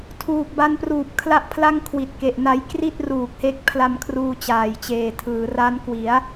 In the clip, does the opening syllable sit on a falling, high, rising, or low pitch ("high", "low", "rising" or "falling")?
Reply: low